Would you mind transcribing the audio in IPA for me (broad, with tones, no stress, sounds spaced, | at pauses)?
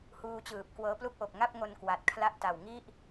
h uː˧ t͡ɕ ɯː˨˩ p̚ k w ɤː˦˥ p l u˥˩ k̚ ʔ o˨˩ k̚ ŋ a˥˩ p̚ ŋ o˧ n k w a˨˩ t̚ kʰ l a˥˩ ʔ t a˨˩ w ŋ i˥˩ ʔ